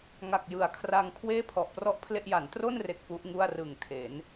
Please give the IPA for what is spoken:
ŋ a˨˩ k̚ j ɯ˩˦ a̯ kʰ r a˧ ŋ kʰ w eː˥˩ pʰ ɔ˨˩ ʔ p r ɔ˥˩ ʔ pʰ l e˥˩ ʔ j a˩˦ n t r o˥˩ n r e˨˩ k̚ p u˦˥ ʔ ŋ u˥˩ a̯ r ɯ˨˩ ŋ tʰ e˩˦ n

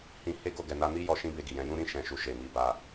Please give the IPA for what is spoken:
h ĩ˧ h e˦ ɡ o˦˨ ɡ ɛ˨ n a˧ n i˦ j ɔ˧ ʃ ĩ˦ b e˧ ɡ i˨ j ɛ̃˨˦ j ũ˦ ɾ ĩ˦ ʃ ɛ̃˧ ʃ u˧ ʃ e˨ m i˨˦ b a˧

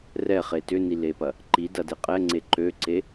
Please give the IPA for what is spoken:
r ɛ χ e t ʏ n i l e p ɐ | ǃ i d ɐ d e qʼ ɛ ŋ͡ǀ e ǃ ø ǀ e

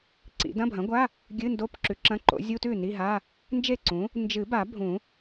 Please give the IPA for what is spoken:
ǀ ḭ˨˩˦ d ɐ̃˧˥˧ bʱ ɐ̃˩˥ ɡʷ a˧˥˧ | ɡʲ ɨ˧˥˧ n d o˧˥˧ p ǁ ʉ˩˥ ǁ ɐ̃˧˥˧ ǃ o̰˩˥ zʲ u˧˥˧ t ʉ˥˩ n i˧˥˧ ɦ a˧˥˧ | n d͡ʒ e˥˩ ǀ ũ˩˥ | n d͡ʒ ɨ˨˩˦ b a˨˩˦ bʱ ũ˨˩˦

